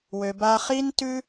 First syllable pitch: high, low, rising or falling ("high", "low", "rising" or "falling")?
low